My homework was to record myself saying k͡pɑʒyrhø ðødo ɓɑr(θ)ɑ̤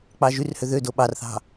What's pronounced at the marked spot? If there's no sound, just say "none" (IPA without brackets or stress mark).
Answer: θ